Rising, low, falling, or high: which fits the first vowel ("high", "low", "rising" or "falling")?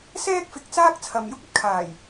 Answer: high